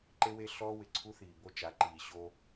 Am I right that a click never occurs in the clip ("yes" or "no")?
no